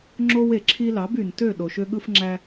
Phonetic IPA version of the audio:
ŋ͡ǁ o˧ w e˨ ǁʰ i˧ l ɑ˨˦ b y˨ n t ø˦˨ ɗ o˨ ʃ ø˧ ɠ ɯ˧ f ŋ͡ǁ æ˧

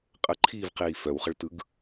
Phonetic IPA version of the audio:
qʼ ə ǃʰ iː v q iː f œ w χ ə ɭ t ɯ ɡ

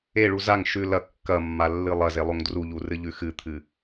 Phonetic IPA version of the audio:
e ɭ u z a ŋ ʃ ʉ l ɐ kː ɐ mː a lː ɨ lˠ ɐ z e lˠ o ŋ d r u ʎ u r ɨ ʎ ʉ x ɨ t̪ʰ ɨ

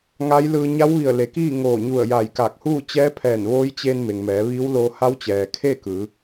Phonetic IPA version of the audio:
ŋ a˧˥ j l ɯː˧ ɲ a˧˥ w ʋ i˧˩ ə̯ l e˩˧ k iː˥˨ ŋ oː˧˩ ɲ u˧˩ ə̯ j a˧˩ j k a˧˩ k̚ h uː˥˨ t͡ɕ ɛː˧˥ pʰ ɛː˧˩ n ʋ oː˧˥ j t͡ɕ e˧ n m e˩ ŋ m ɛː˩˧ ʋ iː˧˥ w l oː˧ h a˧˥ w t͡ɕ ɛː˩ kʰ e˥˨ k ɯː˩˧

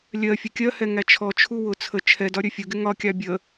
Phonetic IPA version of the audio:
lʲ ɜ fʲ ʌ kʲ ɜ h ɛ ŋ æ t͡ʃʰ ɔ t͡ʃʰ u w ʊ t͡sʰ ə t͡ʃʰ ɛ d ɒ ɾʲ ə fʲ ʊ ɡ ɪ ŋ ɒ kʲ ɑ bʲ ə

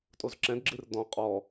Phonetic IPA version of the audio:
tʼ o z ǁ ɛ̃ d ɡ͡ǁ ɨ r d ɔ̃ qʼ ɔ

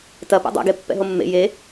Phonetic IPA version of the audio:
t ɐ p a̰ dˤ a̰ ɡ e pː ɛ̰ ɦ o mː ḛ j e

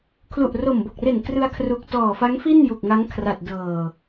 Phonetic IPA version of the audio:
kʰ l u˨˩ ʔ r o˨˩ m b o˨˩ k̚ r e˨˩ n k r ɯ˧ a̯ kʰ r u˨˩ k̚ t ɔː˨˩ f a˦˥ ŋ f i˥˩ n j u˨˩ k̚ ŋ a˦˥ ŋ kʰ r a˨˩ t̚ d ɤː˨˩

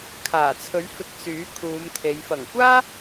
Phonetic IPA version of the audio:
kʰ aː˨˩ t͡sʰ ɵ˨˥ ɥ f ɪ˧ k̚ s yː˨˥ kʰ uː˨˧ m t̪ʰ e˨˧ j f ɐ˨˩ ŋ kʷ aː˥

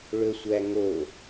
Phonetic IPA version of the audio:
ɭ ɵ sʷ æ ŋ o

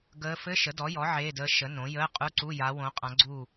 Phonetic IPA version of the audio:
ɡ əː˧˥ f ɘ˧˥˧ ʃ ə˩˥ d ɔ˩˥ j ɔ˩˥ ʕ eː˧˥˧ d əː˧˥ ʃ ə˩˥ n õ˩˥ j əː˧˥˧ qʼ u˧˥˧ ǀ u˧˥˧ j a˧˥ w õ˧˥ qʼ ã˧˥ ɡ͡ǀ uː˥˨

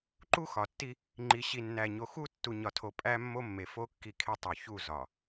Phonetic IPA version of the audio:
ǃ u˦ x ɒ˨ tː i˦ | ŋ͡ǃ i˨ ɕ i˨ nː æ˨ ɲ o˨ x u˦ tː u˨ ɲ ɒ˨ tʰ o˨ pʼ æ˦ mː o˦ mː e˨ f o˦ kː i˦˨ kʰ e˦ tˤ o˨ ç u˦˨ z ɒ˨

